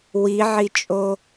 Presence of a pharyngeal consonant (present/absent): present